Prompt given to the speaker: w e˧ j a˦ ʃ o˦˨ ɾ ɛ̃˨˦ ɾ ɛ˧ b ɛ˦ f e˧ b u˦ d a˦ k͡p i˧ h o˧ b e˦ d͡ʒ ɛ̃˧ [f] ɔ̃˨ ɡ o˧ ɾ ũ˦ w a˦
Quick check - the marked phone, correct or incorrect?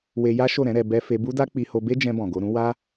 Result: incorrect